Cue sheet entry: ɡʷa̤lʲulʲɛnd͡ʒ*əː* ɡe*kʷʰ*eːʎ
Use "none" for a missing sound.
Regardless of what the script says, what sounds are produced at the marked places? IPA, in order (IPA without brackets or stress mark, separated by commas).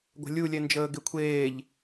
əː, kʷʰ